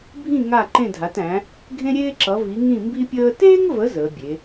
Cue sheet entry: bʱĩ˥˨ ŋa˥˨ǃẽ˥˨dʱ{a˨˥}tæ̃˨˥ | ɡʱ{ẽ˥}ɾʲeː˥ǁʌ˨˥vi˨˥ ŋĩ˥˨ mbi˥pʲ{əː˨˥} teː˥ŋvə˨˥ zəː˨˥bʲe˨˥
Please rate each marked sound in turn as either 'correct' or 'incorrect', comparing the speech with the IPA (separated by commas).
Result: correct, correct, incorrect